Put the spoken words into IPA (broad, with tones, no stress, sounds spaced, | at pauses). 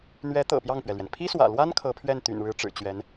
n̪ ɥ ɛ˧˥ t̪ ɤ̰˨˩ p j ɑ˥˩ ŋ p ɥ ɛ˩ l ɥ ɛ˩ n pʰ i˥ s w ä̰˨˩ l w a˥ n kʰ ɤ˧˥ pʰ ɥ ɛ˥˩ n t̪ y̰˨˩ n ɻ ɻ̩˧˥ ʈ͡ʂ ɻ̩˨˩ t͡ɕ ɥ ɛ˧˥ n